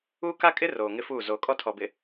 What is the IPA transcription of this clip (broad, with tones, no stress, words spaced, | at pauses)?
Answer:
uː˦ ka˦kʼɪ˦ roː˨ŋɪ˦fuː˦˨ zoː˨kʼɔ˦ tʰɔ˨bɪ˨